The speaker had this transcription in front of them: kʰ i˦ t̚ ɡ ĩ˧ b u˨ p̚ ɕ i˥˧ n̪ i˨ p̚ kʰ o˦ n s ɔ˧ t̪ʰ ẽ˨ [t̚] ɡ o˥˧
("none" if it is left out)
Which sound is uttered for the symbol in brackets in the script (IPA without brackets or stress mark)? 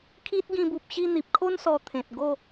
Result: t̚